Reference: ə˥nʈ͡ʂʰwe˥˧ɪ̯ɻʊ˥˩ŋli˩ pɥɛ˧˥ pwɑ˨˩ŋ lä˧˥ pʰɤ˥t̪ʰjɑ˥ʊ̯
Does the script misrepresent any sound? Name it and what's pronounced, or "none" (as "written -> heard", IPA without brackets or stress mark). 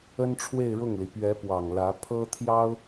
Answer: none